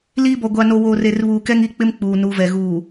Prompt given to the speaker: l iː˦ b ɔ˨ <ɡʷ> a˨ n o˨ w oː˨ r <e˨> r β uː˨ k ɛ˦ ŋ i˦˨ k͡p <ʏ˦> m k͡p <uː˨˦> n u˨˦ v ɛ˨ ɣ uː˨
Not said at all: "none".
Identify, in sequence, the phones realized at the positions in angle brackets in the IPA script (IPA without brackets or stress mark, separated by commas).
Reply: ɡʷ, e˨, ɪ˦, uː˨